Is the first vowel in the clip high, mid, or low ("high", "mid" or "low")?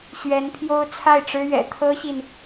mid